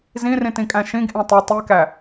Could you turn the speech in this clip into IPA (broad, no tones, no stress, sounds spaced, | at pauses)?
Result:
z ĩ r ĩ t ĩ kʼ æ̃ ʃ ĩ ɡ ʔ ẽ tˤ u tˤ i k æ